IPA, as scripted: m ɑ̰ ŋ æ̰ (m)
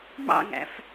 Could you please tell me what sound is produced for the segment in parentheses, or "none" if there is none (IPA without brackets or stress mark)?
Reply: f